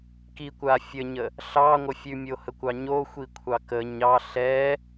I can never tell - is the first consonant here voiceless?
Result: yes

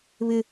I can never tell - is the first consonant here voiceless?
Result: no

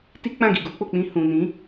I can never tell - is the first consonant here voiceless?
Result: yes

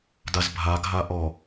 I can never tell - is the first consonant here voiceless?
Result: no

